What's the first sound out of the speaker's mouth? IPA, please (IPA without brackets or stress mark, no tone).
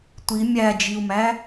tʷ